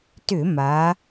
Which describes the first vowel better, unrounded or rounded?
rounded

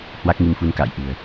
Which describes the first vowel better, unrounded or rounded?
unrounded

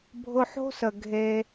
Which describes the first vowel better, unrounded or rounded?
rounded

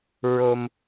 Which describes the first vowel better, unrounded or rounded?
rounded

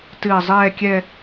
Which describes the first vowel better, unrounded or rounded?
unrounded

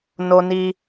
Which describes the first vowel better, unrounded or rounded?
rounded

